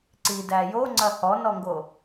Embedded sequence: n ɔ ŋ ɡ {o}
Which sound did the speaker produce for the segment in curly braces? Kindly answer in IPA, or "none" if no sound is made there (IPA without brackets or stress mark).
o